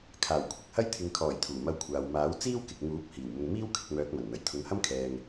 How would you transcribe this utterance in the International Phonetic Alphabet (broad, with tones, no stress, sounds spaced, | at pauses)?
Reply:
kʰ aː˨˩ w kʷʰ ɪ˧ k̚ h ɐ˥ j t̪ʰ ɪ˨ ŋ kʰ ɔː˨˩ j t̪ʰ uː˨˩ m ɐ˧ w kʷʰ aː˨ w m aː˨˥ w t͡s iː˥ w k ɪ˨ k̚ ŋ uː˨˥ p̚ h iː˨˩ w m ʊ˨ ŋ m iː˥ w kʰ ɪ˧ k̚ m œː˨˥ k̚ m ɐ˨˩ n n̪ ɐ˨˩ j t̪ʰ ʊ˨˥ ŋ h ɐ˥ m kʰ ɛː˨ ŋ